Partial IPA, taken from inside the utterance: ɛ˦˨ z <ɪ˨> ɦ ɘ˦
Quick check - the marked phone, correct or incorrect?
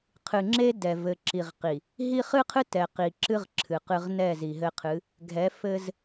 incorrect